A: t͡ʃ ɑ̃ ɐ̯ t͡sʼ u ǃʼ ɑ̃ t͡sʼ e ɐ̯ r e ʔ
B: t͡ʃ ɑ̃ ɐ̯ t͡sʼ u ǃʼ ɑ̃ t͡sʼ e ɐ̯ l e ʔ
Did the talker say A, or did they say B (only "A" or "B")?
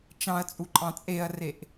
A